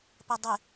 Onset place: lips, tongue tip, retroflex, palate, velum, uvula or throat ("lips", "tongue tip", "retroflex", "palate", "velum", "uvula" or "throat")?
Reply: lips